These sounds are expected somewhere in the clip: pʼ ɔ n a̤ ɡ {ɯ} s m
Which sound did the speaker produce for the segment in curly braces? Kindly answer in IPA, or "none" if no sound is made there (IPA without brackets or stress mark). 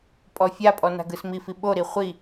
ɯ